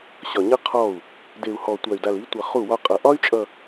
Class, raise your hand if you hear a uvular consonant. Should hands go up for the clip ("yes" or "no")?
yes